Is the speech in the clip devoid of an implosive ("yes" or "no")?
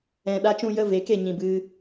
no